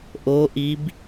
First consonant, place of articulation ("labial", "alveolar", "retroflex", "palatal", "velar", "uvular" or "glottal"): glottal